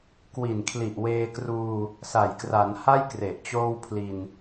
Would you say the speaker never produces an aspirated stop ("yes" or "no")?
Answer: no